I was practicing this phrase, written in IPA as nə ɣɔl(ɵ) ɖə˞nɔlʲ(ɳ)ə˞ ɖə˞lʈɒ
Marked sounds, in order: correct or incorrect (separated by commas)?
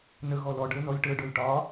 incorrect, incorrect